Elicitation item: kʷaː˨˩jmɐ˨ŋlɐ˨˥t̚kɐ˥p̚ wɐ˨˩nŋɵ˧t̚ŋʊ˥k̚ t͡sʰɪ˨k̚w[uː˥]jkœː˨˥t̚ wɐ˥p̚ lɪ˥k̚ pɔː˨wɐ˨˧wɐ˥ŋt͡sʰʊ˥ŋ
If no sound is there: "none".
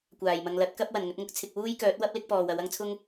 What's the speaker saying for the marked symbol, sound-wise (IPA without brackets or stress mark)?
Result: uː˥